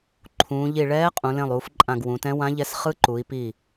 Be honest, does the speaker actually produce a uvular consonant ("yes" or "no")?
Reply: yes